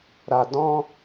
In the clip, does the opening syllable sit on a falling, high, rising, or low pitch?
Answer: low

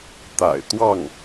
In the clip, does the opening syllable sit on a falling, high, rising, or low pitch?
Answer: low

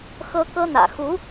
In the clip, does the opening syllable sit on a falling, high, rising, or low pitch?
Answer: high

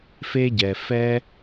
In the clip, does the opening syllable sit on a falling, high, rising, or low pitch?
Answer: high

